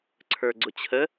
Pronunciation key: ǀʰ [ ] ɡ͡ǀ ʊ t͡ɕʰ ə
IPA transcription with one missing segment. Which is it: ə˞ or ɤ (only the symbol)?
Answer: ə˞